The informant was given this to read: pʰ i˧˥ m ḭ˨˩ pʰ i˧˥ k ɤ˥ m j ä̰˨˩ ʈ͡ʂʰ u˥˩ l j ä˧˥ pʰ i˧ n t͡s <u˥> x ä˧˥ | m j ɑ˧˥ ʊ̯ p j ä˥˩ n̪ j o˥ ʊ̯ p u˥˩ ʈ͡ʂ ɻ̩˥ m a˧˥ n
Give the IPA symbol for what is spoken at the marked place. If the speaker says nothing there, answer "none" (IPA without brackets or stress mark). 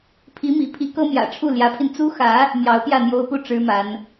u˥